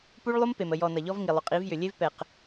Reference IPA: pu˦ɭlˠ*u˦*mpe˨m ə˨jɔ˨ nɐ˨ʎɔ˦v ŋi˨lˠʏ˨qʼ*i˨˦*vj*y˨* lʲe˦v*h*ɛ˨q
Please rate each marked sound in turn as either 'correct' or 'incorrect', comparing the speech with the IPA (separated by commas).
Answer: correct, correct, incorrect, incorrect